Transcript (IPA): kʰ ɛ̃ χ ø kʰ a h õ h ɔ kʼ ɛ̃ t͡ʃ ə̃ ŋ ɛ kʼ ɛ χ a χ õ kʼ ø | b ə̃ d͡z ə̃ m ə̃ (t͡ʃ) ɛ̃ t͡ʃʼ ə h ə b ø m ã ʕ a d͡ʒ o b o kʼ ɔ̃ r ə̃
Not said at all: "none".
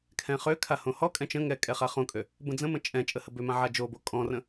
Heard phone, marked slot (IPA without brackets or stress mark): t͡ʃʼ